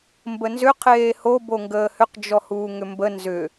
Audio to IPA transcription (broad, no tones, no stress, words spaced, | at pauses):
mbənzʏ qʰeːho boŋɡəːhʏq d͡ʒɔhuːŋʏmbə nzʏ